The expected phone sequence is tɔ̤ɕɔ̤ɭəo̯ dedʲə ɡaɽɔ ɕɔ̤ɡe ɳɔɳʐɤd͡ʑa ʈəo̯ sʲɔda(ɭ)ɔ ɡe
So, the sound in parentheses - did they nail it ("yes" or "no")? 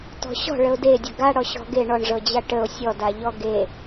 no